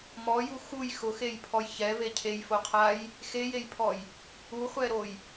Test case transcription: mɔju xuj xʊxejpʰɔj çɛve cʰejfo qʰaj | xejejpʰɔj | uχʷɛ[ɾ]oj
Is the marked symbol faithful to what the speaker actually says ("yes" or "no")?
yes